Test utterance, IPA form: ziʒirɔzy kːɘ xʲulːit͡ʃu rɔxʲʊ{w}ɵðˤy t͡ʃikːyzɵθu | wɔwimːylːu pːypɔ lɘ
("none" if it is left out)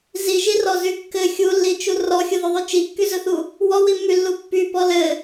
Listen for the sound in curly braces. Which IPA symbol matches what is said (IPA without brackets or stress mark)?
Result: ð